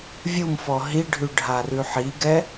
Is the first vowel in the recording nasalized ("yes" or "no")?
no